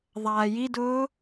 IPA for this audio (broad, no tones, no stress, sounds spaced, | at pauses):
ðˤ aː j i d ʊː